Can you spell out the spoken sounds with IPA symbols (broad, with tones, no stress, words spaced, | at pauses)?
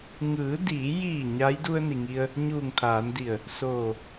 ŋɯː˩˧diː˩˧jiː˧˩ ɲa˧˥j du˧ə̯ni˩ŋi˧ə̯ | ɲuː˧˩ŋt̪ʰaː˩˧ndi˧˩ə̯ | soː˧˩